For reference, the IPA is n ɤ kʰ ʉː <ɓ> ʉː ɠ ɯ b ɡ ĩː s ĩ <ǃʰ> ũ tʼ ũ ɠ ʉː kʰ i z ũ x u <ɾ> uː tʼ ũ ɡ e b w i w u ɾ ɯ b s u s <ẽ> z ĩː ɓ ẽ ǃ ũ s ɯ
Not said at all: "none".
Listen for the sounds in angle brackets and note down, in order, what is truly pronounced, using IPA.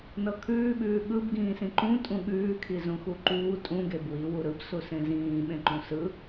ɓ, ǃ, ǃ, ẽ

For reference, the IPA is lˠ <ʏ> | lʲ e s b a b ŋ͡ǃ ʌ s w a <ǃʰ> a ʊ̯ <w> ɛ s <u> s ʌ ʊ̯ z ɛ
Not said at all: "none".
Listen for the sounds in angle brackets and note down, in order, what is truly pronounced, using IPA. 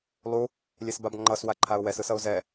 u, ǃʰ, w, ɯ

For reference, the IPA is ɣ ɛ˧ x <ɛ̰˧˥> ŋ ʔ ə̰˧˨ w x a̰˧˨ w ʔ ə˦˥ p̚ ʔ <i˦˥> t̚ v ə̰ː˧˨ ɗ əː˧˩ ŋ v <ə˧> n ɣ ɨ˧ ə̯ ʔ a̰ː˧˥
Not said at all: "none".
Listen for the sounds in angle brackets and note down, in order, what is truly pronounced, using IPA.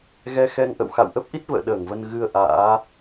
ɛ˧, i˦˥, ə˧

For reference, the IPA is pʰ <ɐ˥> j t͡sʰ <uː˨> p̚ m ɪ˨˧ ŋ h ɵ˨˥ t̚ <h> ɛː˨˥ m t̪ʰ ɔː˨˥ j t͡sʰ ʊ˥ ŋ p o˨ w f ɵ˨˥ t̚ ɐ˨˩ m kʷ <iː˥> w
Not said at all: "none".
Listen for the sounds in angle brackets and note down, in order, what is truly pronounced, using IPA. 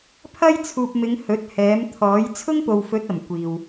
ɐ˥, uː˨, h, iː˨

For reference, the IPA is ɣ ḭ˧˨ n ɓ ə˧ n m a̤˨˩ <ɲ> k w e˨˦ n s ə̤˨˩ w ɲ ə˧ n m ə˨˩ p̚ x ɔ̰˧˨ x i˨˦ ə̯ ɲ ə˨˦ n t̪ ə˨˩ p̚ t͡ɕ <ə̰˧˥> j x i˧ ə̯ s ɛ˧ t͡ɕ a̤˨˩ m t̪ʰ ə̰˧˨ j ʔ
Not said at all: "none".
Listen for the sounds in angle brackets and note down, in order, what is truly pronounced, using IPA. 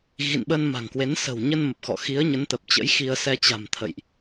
ŋ, ə̰˧˥

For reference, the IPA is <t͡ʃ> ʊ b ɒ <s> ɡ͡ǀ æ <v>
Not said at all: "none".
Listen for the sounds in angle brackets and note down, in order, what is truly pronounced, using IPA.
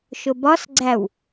ʃ, s, w

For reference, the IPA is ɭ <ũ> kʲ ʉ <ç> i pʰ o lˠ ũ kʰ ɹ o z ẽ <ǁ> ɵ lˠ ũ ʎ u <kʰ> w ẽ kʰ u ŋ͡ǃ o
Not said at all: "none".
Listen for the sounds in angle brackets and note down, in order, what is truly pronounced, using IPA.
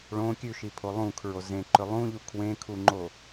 õ, ʃ, ǃ, kʰ

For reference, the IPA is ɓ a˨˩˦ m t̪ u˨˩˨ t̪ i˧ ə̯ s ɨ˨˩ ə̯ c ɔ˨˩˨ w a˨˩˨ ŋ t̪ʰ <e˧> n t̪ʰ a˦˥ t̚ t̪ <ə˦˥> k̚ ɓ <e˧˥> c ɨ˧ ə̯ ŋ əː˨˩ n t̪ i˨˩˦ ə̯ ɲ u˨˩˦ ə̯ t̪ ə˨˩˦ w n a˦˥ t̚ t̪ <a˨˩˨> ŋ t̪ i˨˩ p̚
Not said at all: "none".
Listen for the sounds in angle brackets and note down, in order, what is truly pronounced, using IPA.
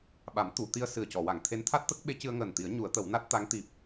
e˧˥, ə˦˥, e˧˥, a˧˥

